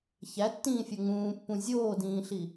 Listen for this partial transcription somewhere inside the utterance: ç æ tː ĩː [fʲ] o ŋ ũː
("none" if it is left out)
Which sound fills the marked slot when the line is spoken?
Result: fʲ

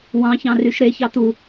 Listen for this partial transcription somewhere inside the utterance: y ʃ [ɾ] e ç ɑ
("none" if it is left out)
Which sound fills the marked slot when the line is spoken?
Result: ɾ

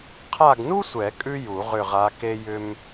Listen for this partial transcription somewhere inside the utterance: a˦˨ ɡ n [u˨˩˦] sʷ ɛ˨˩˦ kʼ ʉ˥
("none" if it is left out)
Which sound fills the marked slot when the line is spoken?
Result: u˥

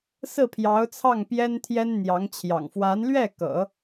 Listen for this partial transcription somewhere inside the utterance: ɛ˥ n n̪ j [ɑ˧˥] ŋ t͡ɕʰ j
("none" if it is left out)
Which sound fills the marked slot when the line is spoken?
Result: ɑ˧˥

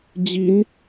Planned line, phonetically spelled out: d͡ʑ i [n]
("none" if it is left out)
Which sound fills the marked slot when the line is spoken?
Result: n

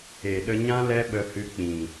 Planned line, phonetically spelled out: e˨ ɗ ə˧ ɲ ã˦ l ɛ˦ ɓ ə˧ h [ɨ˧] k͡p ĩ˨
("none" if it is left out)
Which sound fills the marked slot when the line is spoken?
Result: ɨ˧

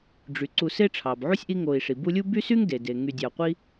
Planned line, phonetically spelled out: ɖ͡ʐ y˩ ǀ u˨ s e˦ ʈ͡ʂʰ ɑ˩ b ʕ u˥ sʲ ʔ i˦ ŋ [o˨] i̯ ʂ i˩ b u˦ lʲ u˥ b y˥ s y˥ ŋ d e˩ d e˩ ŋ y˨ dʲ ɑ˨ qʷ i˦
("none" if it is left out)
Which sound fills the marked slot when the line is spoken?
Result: o˨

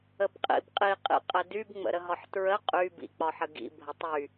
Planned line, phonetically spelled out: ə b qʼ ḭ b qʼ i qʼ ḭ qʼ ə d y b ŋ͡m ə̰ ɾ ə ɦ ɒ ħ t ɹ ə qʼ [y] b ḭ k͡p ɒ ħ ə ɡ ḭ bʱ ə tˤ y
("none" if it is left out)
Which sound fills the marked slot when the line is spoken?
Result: y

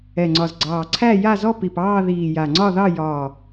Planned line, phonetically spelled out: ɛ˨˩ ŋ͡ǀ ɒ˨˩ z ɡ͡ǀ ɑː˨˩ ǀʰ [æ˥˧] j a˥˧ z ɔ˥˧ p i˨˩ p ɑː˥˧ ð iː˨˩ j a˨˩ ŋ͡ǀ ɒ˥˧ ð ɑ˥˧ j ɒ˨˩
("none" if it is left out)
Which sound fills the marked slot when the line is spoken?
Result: æ˥˧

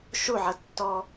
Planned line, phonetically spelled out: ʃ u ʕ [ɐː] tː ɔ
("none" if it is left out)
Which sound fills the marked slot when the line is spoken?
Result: ɐ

